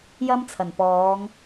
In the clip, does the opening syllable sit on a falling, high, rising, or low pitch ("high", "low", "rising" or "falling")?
high